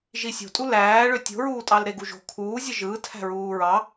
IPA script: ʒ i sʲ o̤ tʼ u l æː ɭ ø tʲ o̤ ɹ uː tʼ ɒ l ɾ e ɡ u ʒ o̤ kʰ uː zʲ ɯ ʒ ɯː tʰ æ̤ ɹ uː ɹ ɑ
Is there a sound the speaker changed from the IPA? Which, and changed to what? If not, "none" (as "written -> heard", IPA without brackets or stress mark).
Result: ɒ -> ɑ